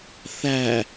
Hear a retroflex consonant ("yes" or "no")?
no